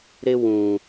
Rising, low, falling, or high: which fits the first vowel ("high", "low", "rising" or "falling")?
high